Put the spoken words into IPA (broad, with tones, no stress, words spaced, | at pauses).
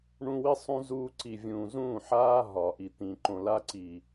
ɳũ˦wi˦sˤũ˦ zuː˦ ǀi˨vʲũː˨ zũː˦˨ħaː˦ ɦɒ˨ʔi˨ t̪ĩ˨ ǃõ˨la˦ǀi˨